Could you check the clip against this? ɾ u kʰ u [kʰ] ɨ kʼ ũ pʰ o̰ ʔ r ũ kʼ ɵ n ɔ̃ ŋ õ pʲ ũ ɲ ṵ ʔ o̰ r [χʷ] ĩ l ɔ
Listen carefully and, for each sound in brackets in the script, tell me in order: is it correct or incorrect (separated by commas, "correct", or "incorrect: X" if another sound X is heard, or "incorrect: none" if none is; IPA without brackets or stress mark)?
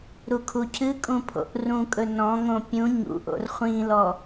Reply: incorrect: cʰ, correct